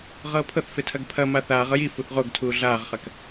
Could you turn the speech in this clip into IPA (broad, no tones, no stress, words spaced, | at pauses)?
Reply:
ʁɤːpʰɤθfe tʰɐɡpʰɐma θaːʁɤj i fuθʁoɡtʰuː ɮaːʁχɐk